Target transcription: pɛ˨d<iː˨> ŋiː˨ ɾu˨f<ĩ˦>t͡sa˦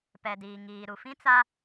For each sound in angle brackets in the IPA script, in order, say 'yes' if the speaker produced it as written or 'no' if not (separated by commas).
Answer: yes, yes